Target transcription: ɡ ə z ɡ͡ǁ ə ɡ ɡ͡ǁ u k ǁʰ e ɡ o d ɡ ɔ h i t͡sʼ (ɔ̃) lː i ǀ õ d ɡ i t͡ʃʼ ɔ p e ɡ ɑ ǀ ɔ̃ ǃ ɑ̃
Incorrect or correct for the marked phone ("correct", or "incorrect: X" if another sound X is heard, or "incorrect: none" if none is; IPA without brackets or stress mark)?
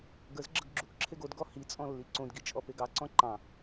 correct